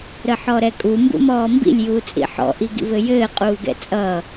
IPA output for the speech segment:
ɾ ə ħ ɔ ɾ ɛ kʼ u m b ṵ m ɔː m b ḭ lʲ j uː t͡sʼ ḭ ħ ɔ̰ ʔ i ɡ ḭ v ɘ j ɘː qʼ uː ɡ ɛ̰ t͡sʼ ʌː

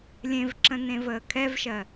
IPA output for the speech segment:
lʲ ẽ v ǁ ə̃ n ẽ v əː kʰ ɛ v ʃ ɜ

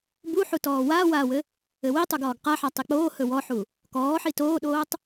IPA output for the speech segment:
b u ħ u t ɔː w aː w aː w ɘ | ɘ w i tˤ u ɡ ɔː ɡ q a ħ a tˤ i k͡p oː h ɵ w ɔ ħ u | k ɔː ħ i t oː ɗ oː tˤ

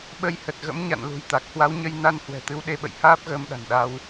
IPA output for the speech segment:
ɓ ə˧ j h ə˨˩ t̚ ɣ ə̰˧˥ m ɲ a̰˧˨ n l ṳ˨˩ j t̪ a˨˩ k̚ h w a˨˦ w ɲ ə˧ j n a˧ n h w ɛ̤˨˩ t̪ ɨ˨˦ w ɗ e˧ ɓ ə̰˧˨ j h aː˦˥ p̚ ɣ əː˧ m ɗ a̤˨˩ n ɗ a˧ w

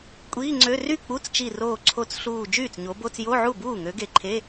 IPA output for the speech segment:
kʷʼ iː˧˥˧ ŋ͡ǀ ø˧˥˧ r y˥˩ k͡p u˧˥˧ t͡s t͡ʃ i˧˩ r oː˧˩ ǀʰ o˧˩ t͡s ɬ uː˧˩ d͡ʒ yː˥˩ t͡s ɲ o˨˦ b o˧˥˧ t͡s j o˧˥˧ ʕ u˥˩ b uː˥˩ ŋ ø˨˦ ɡ e˧˩ ǃʰ e˧˥˧

